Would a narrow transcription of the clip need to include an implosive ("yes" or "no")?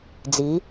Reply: no